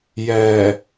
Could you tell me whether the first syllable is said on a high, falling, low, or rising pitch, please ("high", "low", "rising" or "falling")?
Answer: low